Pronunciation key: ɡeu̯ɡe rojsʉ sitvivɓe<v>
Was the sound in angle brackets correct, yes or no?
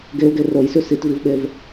yes